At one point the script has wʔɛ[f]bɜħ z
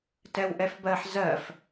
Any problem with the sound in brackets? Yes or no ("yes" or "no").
no